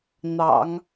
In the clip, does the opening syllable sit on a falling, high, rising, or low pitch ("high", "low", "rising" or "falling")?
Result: low